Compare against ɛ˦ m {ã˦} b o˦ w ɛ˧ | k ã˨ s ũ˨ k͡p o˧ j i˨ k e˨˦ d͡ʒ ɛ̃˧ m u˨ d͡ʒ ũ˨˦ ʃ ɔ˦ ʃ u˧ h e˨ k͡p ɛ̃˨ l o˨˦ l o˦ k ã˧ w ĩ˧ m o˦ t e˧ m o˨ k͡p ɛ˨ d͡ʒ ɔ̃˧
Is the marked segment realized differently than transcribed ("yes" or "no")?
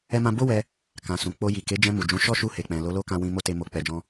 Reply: no